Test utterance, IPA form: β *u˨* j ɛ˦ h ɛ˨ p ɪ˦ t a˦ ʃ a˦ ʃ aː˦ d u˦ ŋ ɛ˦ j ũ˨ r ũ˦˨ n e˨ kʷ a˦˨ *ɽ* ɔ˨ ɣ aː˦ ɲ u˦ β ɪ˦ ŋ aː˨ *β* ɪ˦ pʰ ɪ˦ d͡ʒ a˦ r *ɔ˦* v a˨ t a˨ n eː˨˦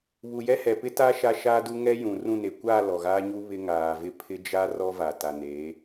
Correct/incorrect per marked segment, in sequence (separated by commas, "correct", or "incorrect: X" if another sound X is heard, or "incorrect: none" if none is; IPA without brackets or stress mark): correct, incorrect: l, incorrect: v, correct